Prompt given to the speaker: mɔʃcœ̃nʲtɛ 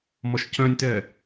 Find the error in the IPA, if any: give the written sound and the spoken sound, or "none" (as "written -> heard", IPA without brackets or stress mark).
none